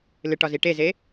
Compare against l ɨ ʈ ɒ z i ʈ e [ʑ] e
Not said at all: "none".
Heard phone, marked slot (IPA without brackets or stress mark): z